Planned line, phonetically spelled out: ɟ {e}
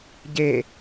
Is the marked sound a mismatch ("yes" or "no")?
no